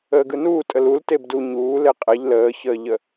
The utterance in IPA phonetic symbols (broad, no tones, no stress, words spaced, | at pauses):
əːɡɯnuː tʼəlulteb du ɲuːle qʼɛʎ ləːçəːʎə